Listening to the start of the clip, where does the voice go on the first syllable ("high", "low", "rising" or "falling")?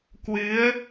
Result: rising